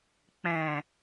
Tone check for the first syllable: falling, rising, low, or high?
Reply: low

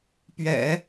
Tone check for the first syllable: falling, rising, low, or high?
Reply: low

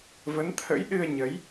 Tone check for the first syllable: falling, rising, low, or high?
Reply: rising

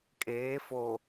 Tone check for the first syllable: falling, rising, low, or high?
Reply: rising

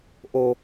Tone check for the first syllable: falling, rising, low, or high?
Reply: low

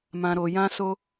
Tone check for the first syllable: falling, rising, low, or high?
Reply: low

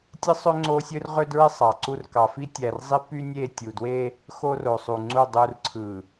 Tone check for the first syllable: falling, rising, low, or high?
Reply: high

